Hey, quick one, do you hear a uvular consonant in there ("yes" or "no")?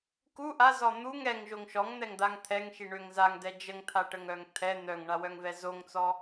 no